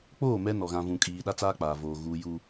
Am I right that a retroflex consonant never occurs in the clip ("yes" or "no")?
yes